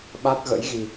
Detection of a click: absent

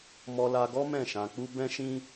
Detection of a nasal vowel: present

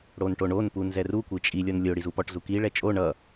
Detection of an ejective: present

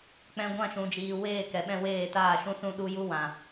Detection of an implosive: present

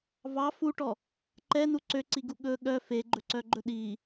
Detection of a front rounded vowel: present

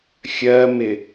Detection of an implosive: absent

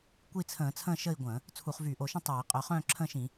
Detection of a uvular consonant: present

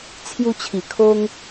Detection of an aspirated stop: present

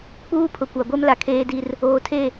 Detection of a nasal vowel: absent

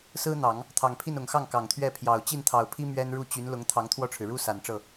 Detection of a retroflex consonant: present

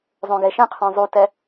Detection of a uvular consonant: present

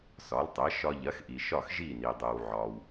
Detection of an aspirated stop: absent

